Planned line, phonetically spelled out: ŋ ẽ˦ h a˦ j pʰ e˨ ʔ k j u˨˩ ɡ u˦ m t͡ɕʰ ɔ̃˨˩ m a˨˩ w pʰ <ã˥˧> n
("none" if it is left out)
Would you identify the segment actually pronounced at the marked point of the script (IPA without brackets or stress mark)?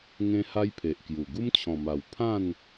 ã˥˧